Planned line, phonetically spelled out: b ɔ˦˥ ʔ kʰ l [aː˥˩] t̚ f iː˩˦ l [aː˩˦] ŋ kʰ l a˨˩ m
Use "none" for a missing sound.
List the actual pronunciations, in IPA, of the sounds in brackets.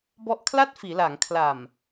a˥˩, aː˩˦

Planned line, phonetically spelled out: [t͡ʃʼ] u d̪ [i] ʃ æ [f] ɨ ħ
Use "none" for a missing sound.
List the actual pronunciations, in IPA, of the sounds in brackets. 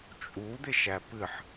t͡ʃʼ, ɪ, p

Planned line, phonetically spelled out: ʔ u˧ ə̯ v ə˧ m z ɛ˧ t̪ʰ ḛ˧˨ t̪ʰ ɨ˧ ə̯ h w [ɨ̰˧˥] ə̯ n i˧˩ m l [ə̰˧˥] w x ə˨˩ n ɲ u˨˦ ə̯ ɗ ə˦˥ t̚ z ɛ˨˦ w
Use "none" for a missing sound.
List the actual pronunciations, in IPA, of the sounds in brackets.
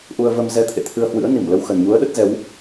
ɨ̰˧˥, ə˧

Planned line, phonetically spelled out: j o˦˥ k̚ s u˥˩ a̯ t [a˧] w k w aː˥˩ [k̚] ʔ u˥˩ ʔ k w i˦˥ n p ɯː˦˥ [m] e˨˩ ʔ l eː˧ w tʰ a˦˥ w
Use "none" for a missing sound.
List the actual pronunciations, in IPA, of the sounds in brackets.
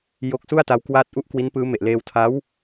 a˦˥, t̚, m

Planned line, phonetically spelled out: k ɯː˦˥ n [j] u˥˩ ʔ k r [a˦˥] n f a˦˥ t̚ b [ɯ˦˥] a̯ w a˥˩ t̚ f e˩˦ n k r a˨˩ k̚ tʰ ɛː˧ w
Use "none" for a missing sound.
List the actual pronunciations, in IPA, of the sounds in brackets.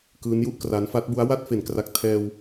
j, a˦˥, u˦˥

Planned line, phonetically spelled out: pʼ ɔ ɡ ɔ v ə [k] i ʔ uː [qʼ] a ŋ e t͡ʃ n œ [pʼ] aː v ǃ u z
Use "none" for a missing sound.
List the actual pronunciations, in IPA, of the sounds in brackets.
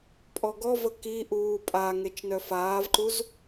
k, pʼ, f

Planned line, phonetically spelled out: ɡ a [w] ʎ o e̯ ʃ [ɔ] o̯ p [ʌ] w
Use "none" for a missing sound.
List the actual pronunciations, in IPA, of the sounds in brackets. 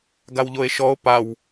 w, ɔ, a

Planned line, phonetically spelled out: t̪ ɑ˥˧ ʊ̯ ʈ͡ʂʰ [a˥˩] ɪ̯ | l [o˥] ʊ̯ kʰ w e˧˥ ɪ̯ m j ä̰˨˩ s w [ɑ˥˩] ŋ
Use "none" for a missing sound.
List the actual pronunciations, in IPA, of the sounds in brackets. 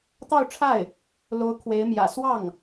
a˥˩, o˧˥, ɑ˥˩

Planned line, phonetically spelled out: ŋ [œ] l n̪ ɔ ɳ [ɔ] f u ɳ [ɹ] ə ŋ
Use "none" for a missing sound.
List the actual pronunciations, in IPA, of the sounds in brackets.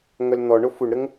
œ, o, ɾ

